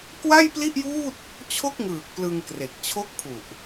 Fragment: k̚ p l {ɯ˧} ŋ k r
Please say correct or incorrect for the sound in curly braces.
correct